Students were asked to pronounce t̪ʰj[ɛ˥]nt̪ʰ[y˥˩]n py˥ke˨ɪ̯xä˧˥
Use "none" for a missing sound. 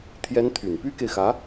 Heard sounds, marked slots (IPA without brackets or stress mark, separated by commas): ɛ˥, y˨˩